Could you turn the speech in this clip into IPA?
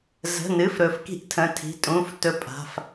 zə̤˩˧˩nɨ˩˧˩f ɾɵ˧˥f ki̤˧˥ʔtʰə̃˩˧˩tʰi̤˩˧˩ tʼũ˩˧˩f tɵ˧˥ pʼa̤˩˧˩f

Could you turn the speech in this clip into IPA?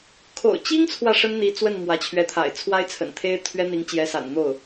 kʰo̰˨˩ʊ̯t͡ɕi˥ŋt͡sʰwä˨ ʂə˥nn̪i˧˥t͡swə˥˩n mwä˧˥t͡ɕʰɥɛ˧˥t̪ʰa̰˨˩ɪ̯ t͡sʰwa˥ɪ̯t͡sʰə̰˨˩nt̪ʰe˥ɪ̯ t̪ʰɥɛ˥n̪i˧˥ŋ t͡ɕjɛ˧˥sa̰˨˩nn̪o˥˩ʊ̯

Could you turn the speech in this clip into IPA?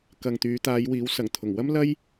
kɐ˨ŋt̪yː˨˧t̪aː˨˧jwiː˨˥w sɐ˨˩ŋt̪ʰʊ˨˩ŋ wɐ˥mlɐ˥j

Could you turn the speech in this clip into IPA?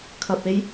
kʰɐ˨p̚e˧j

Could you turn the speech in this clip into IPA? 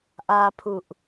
ʔapʰuʔ

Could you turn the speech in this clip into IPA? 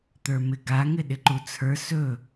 t̪ə˞mɪɡa ŋɪɗɪǃut͡sʰə˞ sɵ

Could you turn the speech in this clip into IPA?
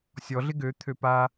sʲɔɮɪ ɡø t̪ʰøpa

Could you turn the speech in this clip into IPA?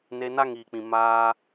ne˧na˦ŋiː˨k͡pĩ˨ maː˧

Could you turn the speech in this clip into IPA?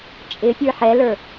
t͡ʃʼɪ pʲə˞ħɛlə˞

